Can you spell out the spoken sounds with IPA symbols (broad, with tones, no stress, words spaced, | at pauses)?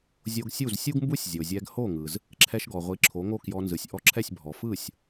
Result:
zʲo˧ɡsʲu˥˩zsʲu˥ɡmbu˥sʲ zʲo˩zʲɛ˧ɡ ho˥˩ŋɯ˩z | ǁʰɛ˧ʃɡɔ˩ʁʷi˩˥ ǁʰo˩˥ŋo˥˩kjɔ˧nzɯ˩sʲ ʔɔ˧ǁʰɛ˥˩sʲbʱɔ˩ fɯ˥˩sʲ